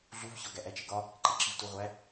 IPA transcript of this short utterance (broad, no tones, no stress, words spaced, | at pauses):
ɮuvçɒ ɡæʔæt͡ʃeɡɒ | ǃeǁivtuʁʷæ